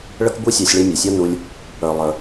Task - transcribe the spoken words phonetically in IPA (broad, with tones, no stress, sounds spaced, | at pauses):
ɭ ə˥ k b u˥ sʲ ɑ˧ sʲ ɭ i˧ mʲ ʌ˩ sʲ ʌ˥ n u˧ lʲ | ə˞˩ lˠ ə˞˩